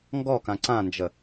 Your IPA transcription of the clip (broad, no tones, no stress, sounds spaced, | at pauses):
ŋ ɡ ɔ k ã ǀ ã n d͡ʒ ə